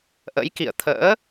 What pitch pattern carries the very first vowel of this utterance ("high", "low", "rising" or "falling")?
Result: rising